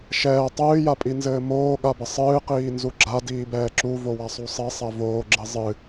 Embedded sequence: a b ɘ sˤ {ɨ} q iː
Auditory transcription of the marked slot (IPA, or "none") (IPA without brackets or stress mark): ɨː